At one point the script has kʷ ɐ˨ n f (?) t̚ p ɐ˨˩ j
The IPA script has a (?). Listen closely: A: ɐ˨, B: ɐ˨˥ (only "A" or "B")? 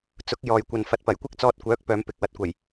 A